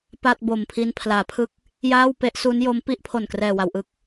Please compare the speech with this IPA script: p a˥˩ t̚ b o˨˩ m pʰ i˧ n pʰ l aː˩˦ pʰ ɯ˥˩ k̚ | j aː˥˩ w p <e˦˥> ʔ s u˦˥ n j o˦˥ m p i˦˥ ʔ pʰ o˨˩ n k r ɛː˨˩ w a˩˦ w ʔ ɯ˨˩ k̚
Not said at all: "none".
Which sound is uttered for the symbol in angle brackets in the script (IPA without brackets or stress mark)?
e˦˥